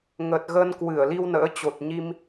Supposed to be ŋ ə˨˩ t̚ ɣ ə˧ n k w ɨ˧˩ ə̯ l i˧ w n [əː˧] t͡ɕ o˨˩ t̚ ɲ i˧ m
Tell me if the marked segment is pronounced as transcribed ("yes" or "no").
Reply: no